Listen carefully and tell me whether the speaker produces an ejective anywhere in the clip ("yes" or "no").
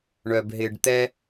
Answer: no